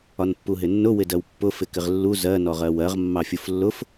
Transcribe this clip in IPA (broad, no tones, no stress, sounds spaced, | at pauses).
ɒ n pː u ɦ ɪ nː ʊ w ɪ d ɜ w pː ʊ f ɪ k ɪ ʁ lː u z ɜ n ɔ ʁ ɜ w ɜ ʁ mː ɑ fʲ u f lː ʊ f